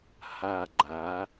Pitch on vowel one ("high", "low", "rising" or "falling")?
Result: falling